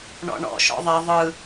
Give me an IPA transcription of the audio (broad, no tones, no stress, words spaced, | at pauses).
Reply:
ɳɔ̰ɳɔ̰ ʃɔ̰ðˤɛ ðˤɯ